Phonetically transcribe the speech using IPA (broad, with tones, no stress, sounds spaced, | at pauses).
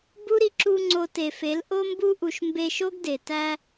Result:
b u˦ ɾ i˧ ǁ u˧ ŋ͡ǀ o˧ t e˨ f e˨˦ l ʔ o˧ m b u˧ ʔ u˨ ʃ m b e˧ ʃ o˦ ɡ d e˨ t æ˧